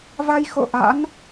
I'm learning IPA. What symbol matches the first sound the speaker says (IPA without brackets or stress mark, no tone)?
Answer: v